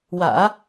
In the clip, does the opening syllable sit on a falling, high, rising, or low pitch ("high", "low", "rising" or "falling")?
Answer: low